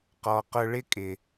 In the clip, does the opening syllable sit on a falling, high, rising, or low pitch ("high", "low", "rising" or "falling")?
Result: low